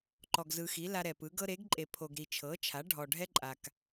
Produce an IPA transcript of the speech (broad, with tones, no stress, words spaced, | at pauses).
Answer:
ǃɔ˨ɡzɯ˨xi˩˥ la˦ɾɛ˨pɯ˩˥ ɡɤ˦ɾe˩˥ɡǃʼe˨ pʰo˨ɡ ɾi˨t͡ʃʰɤ˩˥t͡ʃʰa˩˥ ɖʱɔ˨ɖʱɛ˦ǃʼa˨k